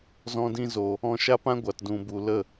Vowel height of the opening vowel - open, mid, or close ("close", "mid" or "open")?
mid